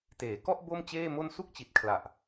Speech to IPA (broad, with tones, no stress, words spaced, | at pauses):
teː˩˦kɔ˥˩ʔ bo˥˩mt͡ɕeː˥˩mo˥˩n su˥˩k̚t͡ɕi˨˩t̚kʰla˨˩ʔ